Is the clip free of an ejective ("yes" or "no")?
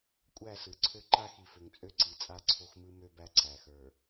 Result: no